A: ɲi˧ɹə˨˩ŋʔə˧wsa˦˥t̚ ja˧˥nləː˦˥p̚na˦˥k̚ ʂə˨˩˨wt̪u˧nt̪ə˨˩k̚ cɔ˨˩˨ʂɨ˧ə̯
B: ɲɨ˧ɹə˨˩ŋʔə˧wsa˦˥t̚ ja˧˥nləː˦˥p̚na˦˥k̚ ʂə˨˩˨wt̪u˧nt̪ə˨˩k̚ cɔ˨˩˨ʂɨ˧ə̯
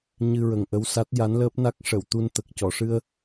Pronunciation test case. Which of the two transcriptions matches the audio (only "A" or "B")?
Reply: B